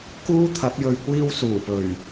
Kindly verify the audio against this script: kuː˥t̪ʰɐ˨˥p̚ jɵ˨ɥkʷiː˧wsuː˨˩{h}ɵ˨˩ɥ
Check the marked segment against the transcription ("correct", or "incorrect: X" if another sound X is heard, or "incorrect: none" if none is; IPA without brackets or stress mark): incorrect: p